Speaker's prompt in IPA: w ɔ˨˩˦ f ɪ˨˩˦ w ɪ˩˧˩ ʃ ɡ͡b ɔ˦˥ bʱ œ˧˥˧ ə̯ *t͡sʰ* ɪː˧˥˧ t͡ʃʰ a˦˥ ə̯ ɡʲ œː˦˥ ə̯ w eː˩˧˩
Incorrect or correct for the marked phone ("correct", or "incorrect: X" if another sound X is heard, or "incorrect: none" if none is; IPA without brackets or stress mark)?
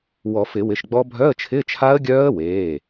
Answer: incorrect: t͡ʃʰ